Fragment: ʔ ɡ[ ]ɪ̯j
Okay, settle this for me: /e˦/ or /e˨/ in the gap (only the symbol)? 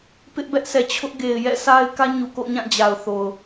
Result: e˨